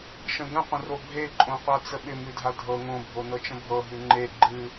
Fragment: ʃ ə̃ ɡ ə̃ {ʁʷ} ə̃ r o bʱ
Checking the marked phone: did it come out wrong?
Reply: yes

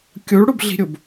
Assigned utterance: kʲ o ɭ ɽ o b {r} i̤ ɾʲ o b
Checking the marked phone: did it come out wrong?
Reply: yes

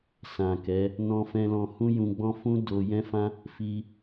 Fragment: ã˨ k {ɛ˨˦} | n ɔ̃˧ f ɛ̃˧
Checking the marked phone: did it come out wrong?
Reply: no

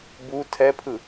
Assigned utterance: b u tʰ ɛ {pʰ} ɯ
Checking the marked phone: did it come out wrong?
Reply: no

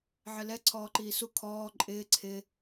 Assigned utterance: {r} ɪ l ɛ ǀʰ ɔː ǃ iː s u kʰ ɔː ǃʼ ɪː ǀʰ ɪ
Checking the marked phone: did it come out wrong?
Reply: yes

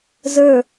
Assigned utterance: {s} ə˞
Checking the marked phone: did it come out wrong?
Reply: yes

